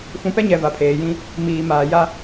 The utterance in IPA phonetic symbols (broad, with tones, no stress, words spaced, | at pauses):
fũ˨pɛ˦ɲɛ˨ va˨pʰeː˨jĩ˦ | miː˨maː˨ja˦